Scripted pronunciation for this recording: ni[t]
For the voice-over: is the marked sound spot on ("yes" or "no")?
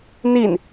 no